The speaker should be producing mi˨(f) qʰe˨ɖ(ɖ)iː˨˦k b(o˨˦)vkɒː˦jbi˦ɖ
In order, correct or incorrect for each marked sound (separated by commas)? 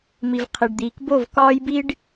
incorrect, incorrect, incorrect